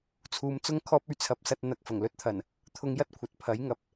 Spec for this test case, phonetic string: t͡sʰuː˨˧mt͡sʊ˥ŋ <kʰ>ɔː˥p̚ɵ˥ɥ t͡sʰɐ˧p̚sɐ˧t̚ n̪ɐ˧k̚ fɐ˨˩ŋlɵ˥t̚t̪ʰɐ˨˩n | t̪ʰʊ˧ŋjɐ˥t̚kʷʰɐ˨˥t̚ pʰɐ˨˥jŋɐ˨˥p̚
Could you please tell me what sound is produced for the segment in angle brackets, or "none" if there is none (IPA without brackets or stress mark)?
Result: kʰ